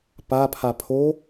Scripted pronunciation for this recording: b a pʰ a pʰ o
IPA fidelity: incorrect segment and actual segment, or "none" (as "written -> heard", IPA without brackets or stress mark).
b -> p